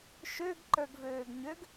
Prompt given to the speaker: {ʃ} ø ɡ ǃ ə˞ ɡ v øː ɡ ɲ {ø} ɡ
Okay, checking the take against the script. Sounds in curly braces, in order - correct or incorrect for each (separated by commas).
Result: correct, correct